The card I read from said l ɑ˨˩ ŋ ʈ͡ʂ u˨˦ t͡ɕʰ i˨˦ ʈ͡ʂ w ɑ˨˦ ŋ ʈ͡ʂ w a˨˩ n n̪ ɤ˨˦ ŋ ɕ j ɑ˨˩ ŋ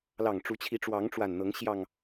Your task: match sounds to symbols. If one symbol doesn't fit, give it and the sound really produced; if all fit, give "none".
none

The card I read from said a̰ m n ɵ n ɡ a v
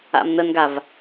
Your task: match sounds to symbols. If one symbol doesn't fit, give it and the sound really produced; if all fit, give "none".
ɵ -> ə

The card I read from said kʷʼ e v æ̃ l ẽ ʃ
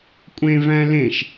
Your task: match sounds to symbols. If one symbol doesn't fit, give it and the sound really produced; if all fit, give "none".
e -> ẽ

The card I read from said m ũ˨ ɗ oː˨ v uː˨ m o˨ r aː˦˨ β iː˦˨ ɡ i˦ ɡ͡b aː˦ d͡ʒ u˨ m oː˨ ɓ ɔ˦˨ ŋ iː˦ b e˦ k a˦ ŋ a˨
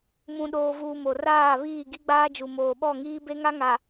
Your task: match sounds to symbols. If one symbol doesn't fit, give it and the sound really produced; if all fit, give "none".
k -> ŋ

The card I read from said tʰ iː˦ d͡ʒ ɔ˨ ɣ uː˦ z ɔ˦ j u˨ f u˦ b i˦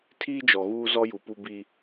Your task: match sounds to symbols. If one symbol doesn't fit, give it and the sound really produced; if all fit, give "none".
f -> p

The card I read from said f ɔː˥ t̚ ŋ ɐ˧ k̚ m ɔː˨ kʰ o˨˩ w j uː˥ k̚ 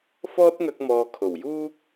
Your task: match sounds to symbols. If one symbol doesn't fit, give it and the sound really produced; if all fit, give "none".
none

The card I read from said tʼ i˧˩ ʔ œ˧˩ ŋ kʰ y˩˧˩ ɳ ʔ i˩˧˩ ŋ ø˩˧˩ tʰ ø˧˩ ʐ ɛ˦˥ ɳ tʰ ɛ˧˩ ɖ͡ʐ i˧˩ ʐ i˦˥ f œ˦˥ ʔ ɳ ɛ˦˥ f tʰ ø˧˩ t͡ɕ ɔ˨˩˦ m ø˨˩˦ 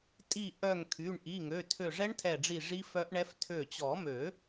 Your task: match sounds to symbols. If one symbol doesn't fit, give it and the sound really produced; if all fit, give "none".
none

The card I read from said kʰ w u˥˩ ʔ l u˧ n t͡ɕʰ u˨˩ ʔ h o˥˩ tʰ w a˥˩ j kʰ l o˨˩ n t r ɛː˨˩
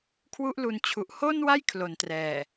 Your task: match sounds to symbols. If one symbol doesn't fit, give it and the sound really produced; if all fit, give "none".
tʰ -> n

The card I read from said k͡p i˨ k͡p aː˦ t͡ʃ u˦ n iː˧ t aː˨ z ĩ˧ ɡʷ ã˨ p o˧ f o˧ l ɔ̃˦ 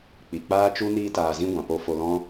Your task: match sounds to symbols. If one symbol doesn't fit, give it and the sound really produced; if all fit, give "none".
none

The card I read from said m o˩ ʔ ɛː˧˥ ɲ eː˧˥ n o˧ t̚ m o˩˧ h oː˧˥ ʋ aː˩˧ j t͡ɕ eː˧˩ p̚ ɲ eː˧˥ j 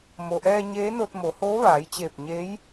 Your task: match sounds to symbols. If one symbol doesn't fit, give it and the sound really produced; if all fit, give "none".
ɛː˧˥ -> ɛː˧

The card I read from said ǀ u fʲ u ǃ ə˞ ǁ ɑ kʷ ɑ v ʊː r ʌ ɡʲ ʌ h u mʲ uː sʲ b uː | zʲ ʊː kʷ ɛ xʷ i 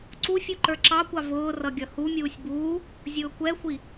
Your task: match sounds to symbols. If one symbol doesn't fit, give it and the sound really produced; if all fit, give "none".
none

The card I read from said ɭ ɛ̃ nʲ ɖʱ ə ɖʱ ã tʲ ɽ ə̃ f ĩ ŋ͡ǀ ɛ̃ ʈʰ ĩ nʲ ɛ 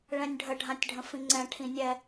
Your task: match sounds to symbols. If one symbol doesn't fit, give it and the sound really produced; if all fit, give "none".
ɽ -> ɖʱ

